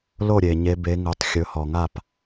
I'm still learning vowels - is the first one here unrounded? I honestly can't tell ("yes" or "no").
no